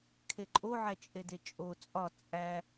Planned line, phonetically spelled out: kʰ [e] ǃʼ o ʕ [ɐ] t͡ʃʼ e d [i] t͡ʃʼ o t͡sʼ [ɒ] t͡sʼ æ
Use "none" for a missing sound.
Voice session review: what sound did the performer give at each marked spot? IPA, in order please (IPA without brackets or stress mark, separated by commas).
e, æ, e, ɒ